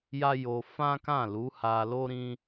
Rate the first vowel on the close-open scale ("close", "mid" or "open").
open